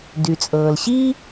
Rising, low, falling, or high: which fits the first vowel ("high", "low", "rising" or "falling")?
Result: low